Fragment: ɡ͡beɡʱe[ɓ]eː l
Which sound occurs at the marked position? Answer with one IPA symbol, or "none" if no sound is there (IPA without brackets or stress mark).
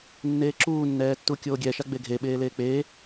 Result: ɓ